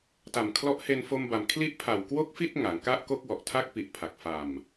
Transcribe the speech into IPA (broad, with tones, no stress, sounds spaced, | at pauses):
t a˨˩ m kʰ l ɔ˦˥ ʔ h e˧ n f o˧ m b a˨˩ m kʰ l i˦˥ ʔ pʰ a˨˩ w k w o˥˩ k̚ f i˥˩ t̚ ŋ a˩˦ ŋ k a˥˩ ʔ k o˥˩ k̚ w ɔ˨˩ ʔ tʰ a˥˩ k̚ p i˨˩ ʔ pʰ a˨˩ k̚ f a˨˩ m